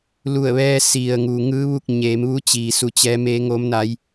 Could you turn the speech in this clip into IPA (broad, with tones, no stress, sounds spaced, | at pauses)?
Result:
l u˧˩ ə̯ ʋ ɛː˧ s i˩ ə̯ ŋ u˩ ŋ ɯː˧˥ ʋ u˥˨ k̚ ɲ eː˩˧ m ʋ u˧˥ t͡ɕ iː˩ s u˩ t͡ɕ ɛː˩˧ m e˩˧ ŋ o˩˧ m n a˩˧ j